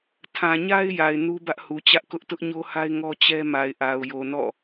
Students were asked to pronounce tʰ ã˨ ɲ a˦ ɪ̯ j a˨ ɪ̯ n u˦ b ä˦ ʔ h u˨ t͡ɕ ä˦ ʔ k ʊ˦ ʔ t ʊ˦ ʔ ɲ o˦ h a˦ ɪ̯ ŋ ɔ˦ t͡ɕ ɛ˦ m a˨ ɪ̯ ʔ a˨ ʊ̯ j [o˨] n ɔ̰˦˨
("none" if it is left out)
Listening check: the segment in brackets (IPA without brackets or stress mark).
o˨